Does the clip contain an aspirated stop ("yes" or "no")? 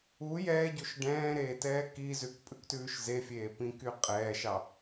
no